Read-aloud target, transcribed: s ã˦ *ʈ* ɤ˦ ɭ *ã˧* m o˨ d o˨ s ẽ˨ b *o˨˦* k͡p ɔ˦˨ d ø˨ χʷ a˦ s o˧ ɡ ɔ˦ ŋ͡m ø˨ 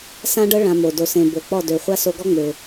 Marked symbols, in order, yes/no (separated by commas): no, yes, no